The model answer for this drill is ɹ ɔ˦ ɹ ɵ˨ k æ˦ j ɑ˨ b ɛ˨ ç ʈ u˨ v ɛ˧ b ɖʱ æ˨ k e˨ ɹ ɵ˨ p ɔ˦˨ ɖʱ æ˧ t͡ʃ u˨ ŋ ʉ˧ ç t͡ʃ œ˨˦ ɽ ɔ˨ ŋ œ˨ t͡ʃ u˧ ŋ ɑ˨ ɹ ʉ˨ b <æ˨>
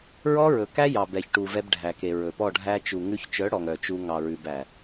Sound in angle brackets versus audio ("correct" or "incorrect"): correct